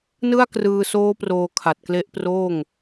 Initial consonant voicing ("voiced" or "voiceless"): voiced